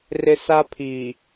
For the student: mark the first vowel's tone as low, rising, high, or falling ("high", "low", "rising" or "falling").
high